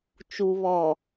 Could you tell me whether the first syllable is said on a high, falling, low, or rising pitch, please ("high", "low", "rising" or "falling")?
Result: low